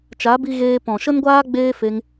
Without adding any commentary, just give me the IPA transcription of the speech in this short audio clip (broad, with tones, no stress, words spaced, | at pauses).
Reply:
t͡ʃa˨˦bi˧ ɣeː˧ pɔ̃˨ʃə˧nɡʷaː˧ɡ͡beː˧ fe˦ŋ